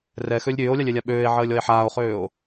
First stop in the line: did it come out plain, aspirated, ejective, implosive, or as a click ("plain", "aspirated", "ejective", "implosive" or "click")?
implosive